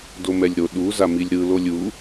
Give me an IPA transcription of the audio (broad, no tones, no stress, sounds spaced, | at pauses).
d o m ɛ lʲ ɾ o ɗ u z a m i lʲ ɾ ɯ l o lʲ u